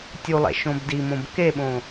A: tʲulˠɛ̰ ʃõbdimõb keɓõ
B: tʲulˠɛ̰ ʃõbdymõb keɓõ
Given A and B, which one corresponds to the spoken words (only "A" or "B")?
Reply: A